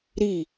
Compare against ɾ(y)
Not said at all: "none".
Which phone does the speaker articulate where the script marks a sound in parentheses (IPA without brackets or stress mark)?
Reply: i